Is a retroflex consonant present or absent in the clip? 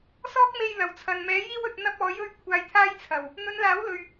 absent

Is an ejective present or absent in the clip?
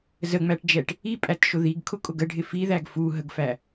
present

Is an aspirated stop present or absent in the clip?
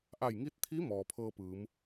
present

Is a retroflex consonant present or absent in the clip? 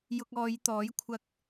absent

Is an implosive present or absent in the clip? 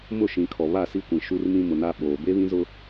present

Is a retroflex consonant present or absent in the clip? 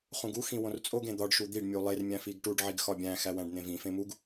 present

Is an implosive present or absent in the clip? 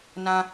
absent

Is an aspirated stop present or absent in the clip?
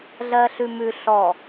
absent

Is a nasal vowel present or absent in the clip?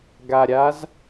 absent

